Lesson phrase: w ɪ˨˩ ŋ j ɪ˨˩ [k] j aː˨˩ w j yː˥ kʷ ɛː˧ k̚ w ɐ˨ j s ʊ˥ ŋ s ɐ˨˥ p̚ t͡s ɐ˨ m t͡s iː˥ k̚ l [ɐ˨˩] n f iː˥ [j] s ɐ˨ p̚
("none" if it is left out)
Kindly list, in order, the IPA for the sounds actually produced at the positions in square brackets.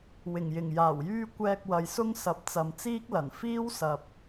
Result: ŋ, ɐ˨˩, w

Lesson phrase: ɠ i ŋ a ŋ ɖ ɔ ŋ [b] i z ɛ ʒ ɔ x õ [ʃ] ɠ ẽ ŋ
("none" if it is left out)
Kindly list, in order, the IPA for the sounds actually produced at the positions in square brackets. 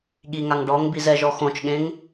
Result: b, t͡ʃ

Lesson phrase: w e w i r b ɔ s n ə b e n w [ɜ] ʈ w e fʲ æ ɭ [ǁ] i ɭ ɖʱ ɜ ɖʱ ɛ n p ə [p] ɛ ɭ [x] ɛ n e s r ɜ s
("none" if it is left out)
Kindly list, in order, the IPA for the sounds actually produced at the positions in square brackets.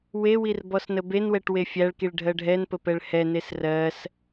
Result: ɛ, k, p, h

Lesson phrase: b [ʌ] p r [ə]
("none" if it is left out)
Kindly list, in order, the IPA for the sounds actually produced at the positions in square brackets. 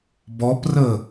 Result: ɔ, ə

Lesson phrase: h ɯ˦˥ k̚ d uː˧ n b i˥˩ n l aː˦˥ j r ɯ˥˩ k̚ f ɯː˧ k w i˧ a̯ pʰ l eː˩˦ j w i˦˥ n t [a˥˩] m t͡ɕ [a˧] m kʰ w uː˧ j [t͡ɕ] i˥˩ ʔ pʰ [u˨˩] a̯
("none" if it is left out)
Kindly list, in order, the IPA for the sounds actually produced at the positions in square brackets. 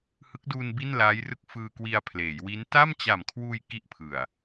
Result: a˥˩, a˨˩, k, ɯ˨˩

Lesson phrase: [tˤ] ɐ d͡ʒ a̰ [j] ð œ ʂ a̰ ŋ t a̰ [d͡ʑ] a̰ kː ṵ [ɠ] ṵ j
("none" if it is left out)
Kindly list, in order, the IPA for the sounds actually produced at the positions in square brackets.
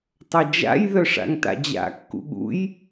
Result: tˤ, j, d͡ʑ, ɠ

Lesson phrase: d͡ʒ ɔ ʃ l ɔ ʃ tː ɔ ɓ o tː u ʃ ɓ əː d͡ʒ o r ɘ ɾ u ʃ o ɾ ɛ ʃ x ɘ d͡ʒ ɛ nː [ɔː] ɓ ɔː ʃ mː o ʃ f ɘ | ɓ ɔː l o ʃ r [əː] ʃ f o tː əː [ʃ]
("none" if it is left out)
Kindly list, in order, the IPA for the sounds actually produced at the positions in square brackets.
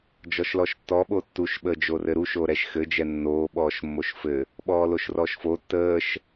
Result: oː, ɔː, ʃ

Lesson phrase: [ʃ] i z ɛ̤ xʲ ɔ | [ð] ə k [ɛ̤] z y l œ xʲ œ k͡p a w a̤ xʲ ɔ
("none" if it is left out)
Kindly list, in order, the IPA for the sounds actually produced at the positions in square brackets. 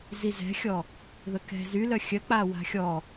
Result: z, ð, ɛ̤

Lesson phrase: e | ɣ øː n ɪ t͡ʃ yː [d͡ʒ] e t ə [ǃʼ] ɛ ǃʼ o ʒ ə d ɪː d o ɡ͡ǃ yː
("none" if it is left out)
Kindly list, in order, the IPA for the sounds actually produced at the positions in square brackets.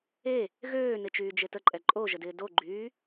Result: d͡ʒ, ǃʼ

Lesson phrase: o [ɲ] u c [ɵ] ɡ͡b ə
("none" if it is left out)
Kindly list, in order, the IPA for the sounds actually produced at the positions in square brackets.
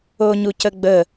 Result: ɲ, ə

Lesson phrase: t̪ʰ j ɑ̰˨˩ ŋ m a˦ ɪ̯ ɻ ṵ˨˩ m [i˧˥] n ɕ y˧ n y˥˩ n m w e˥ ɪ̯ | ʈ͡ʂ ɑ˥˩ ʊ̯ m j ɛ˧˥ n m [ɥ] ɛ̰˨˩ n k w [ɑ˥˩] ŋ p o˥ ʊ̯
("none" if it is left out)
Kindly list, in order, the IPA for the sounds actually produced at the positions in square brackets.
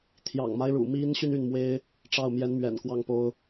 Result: i˧˥, ɥ, ɑ˥˩

